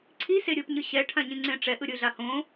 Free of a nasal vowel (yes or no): no